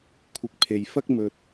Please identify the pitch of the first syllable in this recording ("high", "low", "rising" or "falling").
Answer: rising